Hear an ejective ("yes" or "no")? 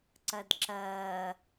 no